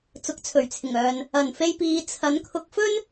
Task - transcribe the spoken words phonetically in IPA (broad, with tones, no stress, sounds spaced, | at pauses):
t͡s ʊ˨˥ k̚ t͡sʰ ɵ˨˩ ɥ t͡sʰ ɪ˨˩ ŋ œː˨ n | ɐ˨˩ n f e˧ j p iː˨˧ t͡sʰ ɐ˨˥ n kʰ ʊ˧ k̚ f ɵ˥ n